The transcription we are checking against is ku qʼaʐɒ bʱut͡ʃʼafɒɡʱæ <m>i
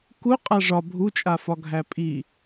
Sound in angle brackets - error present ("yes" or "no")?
yes